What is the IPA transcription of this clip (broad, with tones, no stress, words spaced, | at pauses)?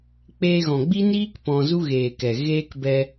k͡peː˧ɣɔ̃˨ɡ͡bi˦niː˦k pɔ̃˧zu˦ɣeː˨ kɛ˨ɣeː˦kbɛ˧